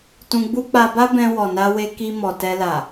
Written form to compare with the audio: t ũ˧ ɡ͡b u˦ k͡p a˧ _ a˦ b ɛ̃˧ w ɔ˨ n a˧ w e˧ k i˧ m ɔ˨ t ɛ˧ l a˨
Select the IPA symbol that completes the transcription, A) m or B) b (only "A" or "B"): B